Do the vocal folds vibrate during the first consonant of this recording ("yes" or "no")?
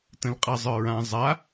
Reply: no